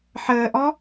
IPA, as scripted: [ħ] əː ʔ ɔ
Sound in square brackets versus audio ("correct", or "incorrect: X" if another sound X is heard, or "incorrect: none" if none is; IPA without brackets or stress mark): correct